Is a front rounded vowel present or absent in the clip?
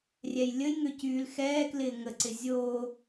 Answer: present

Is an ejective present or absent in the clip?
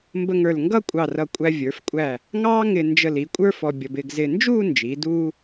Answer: present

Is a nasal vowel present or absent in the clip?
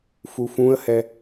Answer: present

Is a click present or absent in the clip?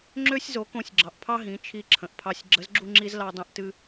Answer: present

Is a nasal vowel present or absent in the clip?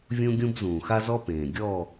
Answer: present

